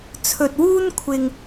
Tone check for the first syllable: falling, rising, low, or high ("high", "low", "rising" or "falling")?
low